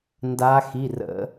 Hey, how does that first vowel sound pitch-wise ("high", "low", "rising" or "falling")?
rising